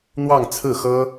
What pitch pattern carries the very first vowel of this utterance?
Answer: falling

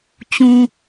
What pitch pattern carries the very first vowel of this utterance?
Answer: low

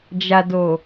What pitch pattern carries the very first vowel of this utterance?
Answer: low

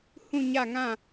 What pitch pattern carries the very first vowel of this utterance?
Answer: falling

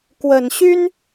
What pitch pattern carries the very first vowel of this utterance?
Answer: low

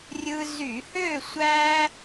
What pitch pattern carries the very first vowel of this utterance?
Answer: high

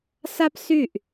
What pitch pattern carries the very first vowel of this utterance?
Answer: high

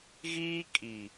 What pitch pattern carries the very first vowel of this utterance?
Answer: high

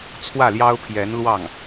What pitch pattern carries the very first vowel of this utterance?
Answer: falling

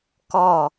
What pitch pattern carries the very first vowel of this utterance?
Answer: falling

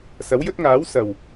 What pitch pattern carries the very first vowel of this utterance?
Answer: rising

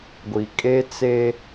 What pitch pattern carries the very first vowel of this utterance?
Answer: low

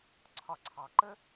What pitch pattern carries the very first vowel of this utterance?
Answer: low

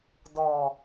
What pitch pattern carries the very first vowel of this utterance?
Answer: low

